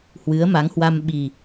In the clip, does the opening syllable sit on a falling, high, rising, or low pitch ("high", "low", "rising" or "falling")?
rising